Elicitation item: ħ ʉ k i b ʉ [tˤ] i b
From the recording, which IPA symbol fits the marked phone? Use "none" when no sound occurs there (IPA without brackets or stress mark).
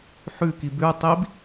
tˤ